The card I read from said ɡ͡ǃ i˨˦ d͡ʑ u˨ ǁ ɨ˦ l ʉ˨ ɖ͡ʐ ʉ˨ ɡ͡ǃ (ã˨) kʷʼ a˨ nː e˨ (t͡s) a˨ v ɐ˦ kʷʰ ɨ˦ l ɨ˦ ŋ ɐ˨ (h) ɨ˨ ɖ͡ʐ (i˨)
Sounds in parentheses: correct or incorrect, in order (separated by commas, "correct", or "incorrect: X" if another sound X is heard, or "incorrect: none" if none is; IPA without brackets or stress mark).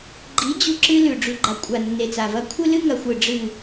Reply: incorrect: a˨, correct, incorrect: xʷ, incorrect: ɨ˨